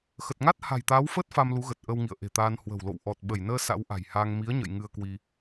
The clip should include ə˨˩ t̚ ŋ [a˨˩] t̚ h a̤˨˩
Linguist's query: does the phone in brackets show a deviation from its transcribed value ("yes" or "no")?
yes